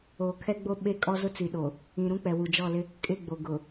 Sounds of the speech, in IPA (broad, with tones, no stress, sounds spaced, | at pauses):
o˨ kʰ ɛ˦ ɡ͡b o˦ ɓ e˦ kʼ ɔ˦ z ʊ˦ t͡s i˨ ɗ o˨ | ĩ˨ ɾ ũ˦ k͡p ɛ˨ w u˨ d͡ʒ ɔ˦˨ l ɪ˦ | kʼ ɪ˦˨ ɡ͡b o˨ ɡ ʊ˨